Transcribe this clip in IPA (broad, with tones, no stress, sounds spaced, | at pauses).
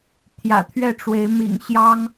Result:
t̪ʰ j ä̰˨˩ t̪ʰ ɥ ɛ˥˩ ʈ͡ʂ w e˧˥ ɪ̯ m ḭ˨˩ ŋ ɕ j ɑ˥ ŋ